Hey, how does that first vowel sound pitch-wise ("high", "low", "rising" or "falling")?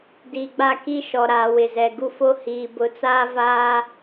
low